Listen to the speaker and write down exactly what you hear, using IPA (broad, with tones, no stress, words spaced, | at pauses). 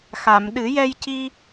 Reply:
xa˨˩˨m ɗɨ˨˩˦jɛ˧jci˧